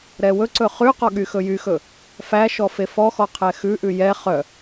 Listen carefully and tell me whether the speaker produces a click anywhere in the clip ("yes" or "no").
yes